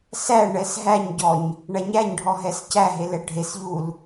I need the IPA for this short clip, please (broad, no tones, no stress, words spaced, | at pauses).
sæɳɛs ɦæɲɟɔɲ | ɳæɲæɲɖʱɔ ɦɛscæɦe lɛɖʱesʎul